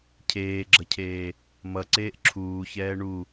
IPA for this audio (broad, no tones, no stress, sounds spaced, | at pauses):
cʰ eː ɡ͡ǁ ʌ cʰ eː | m ʌ ǀ eː ʔ ǁʰ uː ç ɛː ɳ u